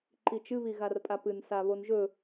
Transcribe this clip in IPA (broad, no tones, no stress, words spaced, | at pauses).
ǃit͡ʃɨ βiɣarpʼapɨn saβonʒɵ